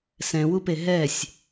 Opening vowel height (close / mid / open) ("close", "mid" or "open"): mid